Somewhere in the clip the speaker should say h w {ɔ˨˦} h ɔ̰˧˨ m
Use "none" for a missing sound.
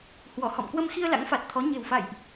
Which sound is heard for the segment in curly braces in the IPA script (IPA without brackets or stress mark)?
ɔ˧˩